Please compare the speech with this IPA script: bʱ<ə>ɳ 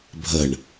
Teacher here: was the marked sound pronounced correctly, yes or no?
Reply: yes